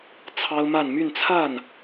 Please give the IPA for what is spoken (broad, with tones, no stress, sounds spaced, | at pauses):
t͡sʰ ɑ˥ ʊ̯ m a˥˧ n m y˥˧ n t͡sʰ a˥˩ n